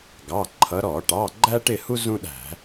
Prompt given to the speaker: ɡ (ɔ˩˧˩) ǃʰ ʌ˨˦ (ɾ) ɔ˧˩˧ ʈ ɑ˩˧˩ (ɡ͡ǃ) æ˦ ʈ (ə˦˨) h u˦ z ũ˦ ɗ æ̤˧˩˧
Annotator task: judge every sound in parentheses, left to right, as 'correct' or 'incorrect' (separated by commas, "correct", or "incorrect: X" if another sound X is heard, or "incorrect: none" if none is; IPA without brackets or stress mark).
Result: incorrect: ɑ˩˧˩, correct, correct, incorrect: ɪ˦˨